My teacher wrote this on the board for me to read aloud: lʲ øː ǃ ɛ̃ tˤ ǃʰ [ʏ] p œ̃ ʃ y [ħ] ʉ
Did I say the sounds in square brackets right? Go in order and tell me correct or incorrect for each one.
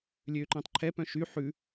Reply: incorrect: ɛ, correct

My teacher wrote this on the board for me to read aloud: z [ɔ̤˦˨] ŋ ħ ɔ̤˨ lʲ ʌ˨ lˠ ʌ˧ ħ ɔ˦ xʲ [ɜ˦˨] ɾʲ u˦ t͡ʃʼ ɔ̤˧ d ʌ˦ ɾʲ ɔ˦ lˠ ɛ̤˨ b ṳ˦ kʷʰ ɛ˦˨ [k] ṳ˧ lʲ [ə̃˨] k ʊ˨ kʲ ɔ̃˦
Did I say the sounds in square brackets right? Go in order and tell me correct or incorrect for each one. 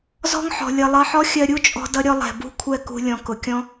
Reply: incorrect: ɔ̤˦, incorrect: ɜ˧, correct, incorrect: ɔ̃˨

